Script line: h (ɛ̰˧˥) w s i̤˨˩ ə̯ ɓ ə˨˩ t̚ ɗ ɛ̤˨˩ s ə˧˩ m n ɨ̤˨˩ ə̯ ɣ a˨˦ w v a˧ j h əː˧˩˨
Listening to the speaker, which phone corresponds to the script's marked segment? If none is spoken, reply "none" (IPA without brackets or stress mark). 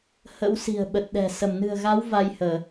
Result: ə̰˧˥